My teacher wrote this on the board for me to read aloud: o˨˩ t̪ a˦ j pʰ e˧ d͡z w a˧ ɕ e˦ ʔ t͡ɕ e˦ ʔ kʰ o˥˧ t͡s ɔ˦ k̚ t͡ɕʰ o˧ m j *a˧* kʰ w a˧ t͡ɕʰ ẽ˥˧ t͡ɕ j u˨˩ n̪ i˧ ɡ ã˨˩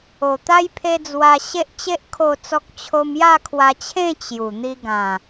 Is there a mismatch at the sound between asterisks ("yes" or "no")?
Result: yes